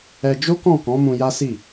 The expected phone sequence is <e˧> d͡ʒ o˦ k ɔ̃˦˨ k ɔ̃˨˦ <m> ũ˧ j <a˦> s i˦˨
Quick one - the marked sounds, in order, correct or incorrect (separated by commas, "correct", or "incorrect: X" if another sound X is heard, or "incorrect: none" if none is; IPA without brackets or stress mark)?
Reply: incorrect: ɛ˧, correct, correct